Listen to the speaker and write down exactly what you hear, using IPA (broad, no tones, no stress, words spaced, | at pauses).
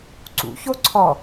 ǀṵço ǀʰɔ